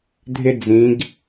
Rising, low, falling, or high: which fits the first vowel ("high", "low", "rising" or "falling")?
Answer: high